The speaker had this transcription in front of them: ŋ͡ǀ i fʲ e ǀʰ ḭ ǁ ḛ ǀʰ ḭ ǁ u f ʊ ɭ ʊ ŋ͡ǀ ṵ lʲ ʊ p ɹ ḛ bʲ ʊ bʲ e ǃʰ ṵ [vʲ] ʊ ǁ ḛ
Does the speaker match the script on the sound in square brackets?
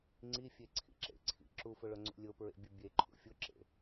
no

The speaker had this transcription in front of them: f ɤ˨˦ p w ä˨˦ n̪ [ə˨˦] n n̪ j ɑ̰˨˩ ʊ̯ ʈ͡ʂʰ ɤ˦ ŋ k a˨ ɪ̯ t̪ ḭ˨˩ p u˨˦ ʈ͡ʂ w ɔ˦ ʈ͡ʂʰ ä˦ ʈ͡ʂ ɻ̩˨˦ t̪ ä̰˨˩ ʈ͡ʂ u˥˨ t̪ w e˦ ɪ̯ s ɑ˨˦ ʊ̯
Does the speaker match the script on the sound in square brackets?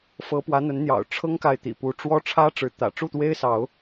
yes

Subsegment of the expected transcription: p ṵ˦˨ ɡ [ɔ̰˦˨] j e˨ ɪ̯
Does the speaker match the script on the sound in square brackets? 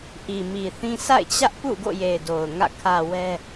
no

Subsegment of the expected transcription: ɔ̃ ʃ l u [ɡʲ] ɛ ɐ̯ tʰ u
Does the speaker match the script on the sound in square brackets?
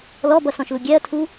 yes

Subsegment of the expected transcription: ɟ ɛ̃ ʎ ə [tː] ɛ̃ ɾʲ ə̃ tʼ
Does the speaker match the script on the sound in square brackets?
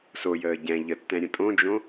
yes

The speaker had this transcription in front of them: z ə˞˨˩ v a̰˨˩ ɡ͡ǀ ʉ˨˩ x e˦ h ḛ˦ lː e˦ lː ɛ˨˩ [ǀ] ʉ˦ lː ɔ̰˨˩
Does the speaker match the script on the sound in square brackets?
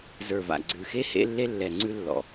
no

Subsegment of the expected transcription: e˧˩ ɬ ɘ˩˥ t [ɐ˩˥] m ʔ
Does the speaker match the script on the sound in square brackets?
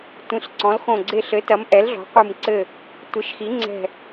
yes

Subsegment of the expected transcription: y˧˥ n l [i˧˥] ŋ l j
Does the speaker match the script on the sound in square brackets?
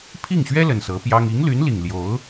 no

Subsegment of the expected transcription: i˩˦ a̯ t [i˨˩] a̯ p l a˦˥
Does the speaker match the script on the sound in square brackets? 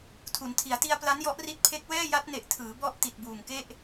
no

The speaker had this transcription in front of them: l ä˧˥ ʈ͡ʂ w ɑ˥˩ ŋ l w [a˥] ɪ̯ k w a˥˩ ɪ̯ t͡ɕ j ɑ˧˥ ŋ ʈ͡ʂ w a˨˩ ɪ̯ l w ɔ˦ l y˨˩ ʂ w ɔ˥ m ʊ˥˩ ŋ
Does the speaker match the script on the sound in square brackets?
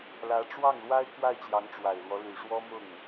yes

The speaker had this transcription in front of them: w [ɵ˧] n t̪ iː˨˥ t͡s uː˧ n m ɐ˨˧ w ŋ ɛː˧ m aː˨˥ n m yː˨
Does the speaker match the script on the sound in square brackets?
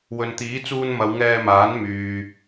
no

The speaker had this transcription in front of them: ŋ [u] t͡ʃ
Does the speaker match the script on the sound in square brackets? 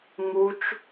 yes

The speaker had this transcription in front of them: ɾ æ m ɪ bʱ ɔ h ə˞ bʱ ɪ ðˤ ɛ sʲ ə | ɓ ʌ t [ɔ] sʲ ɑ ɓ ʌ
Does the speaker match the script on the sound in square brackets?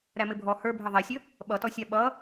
yes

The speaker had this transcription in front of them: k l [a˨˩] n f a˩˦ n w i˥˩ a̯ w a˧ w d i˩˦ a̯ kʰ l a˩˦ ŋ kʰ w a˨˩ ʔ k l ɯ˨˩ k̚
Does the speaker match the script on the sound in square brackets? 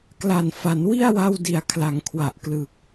yes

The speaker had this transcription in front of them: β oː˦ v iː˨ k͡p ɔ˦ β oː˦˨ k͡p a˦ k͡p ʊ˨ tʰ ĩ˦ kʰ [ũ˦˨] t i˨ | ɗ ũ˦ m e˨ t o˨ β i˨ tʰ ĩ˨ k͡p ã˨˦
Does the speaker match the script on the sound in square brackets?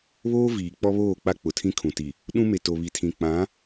no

